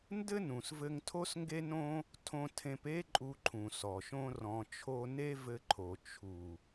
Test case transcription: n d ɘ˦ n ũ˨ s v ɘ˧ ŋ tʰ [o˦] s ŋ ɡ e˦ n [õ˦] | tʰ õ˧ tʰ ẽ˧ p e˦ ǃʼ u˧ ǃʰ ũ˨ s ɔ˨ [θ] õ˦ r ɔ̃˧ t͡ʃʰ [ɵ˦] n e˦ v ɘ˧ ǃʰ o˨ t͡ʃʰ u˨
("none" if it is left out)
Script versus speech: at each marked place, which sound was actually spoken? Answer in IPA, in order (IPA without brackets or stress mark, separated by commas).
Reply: o˦, õ˦, ʃ, o˦